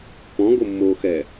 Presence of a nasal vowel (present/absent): present